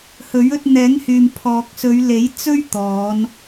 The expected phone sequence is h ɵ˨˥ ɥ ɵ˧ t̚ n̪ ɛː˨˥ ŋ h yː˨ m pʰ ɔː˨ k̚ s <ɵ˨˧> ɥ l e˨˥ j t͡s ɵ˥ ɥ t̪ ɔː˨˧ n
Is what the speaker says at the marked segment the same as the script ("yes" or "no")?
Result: yes